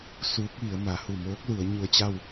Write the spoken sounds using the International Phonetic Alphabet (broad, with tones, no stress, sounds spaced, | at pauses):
s uː˧˥ k̚ ʋ i˩˧ ə̯ m a˩˧ h u˧˩ m oː˧˥ k̚ l u˩˧ ə̯ ɲ u˧ ə̯ t͡ɕ a˥˨ w